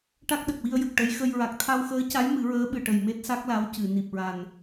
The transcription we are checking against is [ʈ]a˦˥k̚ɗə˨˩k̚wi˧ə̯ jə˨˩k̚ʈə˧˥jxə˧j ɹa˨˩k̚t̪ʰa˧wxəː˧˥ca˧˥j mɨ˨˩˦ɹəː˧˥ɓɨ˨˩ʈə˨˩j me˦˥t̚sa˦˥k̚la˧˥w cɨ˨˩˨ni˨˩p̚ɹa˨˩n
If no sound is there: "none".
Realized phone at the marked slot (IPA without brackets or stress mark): ʈ